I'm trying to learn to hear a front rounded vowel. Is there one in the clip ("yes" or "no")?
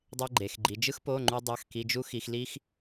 no